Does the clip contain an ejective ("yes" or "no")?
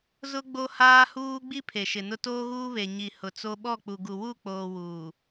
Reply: no